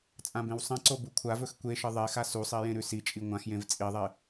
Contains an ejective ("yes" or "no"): yes